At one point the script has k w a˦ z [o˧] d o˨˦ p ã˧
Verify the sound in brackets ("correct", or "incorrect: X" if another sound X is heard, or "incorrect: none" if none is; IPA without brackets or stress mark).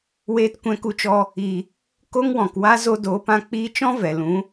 correct